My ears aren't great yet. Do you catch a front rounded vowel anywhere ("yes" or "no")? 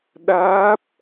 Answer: no